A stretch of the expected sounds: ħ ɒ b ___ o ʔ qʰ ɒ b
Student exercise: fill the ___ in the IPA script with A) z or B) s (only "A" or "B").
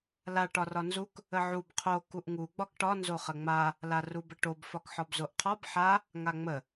A